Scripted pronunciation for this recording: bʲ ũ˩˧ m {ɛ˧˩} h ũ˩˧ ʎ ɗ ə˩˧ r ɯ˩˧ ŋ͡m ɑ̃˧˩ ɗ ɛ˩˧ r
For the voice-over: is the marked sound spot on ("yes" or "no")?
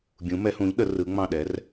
no